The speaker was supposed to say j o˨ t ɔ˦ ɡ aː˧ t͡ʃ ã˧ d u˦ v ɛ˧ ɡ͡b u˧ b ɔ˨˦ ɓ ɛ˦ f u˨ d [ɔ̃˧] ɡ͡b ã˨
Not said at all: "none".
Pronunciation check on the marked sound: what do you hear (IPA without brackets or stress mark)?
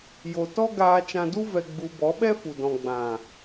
ɔ̃˨